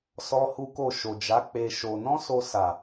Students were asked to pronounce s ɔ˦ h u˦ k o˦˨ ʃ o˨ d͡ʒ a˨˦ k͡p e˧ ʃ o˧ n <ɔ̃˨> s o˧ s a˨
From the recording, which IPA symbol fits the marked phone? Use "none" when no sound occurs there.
ɔ̃˦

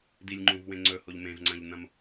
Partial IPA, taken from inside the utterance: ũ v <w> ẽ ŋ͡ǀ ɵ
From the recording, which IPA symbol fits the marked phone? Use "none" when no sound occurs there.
w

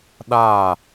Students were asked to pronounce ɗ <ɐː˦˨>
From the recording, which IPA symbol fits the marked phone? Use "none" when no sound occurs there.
aː˦˨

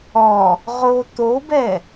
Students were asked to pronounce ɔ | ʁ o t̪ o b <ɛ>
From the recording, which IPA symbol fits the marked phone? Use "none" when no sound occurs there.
ɛ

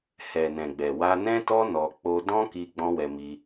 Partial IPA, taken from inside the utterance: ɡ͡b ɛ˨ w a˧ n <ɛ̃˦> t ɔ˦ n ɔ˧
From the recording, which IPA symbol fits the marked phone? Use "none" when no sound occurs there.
ɛ̃˦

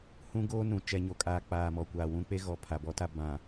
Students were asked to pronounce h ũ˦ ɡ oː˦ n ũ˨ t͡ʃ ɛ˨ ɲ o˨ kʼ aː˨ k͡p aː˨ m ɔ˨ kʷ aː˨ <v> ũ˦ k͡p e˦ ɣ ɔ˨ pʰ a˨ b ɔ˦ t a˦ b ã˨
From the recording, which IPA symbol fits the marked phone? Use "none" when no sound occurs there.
w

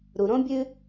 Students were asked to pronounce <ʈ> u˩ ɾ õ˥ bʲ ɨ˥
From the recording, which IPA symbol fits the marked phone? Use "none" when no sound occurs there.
ɾ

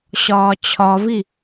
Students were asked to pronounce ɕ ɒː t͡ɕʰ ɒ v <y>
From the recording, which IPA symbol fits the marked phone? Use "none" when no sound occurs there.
i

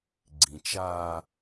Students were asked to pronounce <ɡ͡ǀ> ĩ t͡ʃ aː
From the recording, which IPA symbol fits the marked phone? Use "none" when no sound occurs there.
ɡ͡ǀ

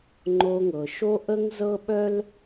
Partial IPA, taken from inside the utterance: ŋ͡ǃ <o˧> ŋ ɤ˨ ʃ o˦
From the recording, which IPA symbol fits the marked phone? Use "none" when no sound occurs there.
o˧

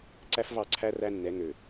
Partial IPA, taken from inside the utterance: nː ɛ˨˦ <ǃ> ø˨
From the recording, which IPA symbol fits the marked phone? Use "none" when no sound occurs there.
ŋ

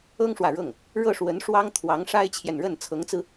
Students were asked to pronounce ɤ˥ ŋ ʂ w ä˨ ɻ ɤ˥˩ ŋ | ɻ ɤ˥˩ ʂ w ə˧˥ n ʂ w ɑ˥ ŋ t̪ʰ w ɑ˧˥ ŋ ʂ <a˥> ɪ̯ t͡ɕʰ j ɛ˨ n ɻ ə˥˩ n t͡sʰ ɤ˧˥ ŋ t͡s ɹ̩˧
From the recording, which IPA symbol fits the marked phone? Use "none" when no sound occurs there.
a˥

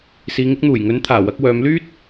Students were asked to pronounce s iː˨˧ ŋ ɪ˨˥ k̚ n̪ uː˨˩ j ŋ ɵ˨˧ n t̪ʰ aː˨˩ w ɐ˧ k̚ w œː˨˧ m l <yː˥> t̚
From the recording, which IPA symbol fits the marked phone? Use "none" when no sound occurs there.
yː˥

